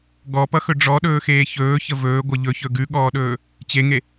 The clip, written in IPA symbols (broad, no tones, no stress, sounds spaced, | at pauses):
ɡ ɔ p ʌ x ɵ ɖ͡ʐ ɔ ɗ ɵː x eː ç ɵː ç ə v ɵː ɡʷ ʌ ʎ ɵ ç ɵ ɡ ʉ ɠ ɔː ɗ ɵː | t͡ɕ e ŋ e